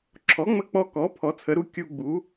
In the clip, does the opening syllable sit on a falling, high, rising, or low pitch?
rising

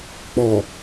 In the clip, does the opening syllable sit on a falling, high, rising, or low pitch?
low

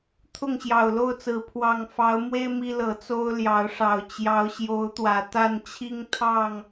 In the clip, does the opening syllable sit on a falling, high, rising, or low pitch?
falling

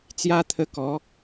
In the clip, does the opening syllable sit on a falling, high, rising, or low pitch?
high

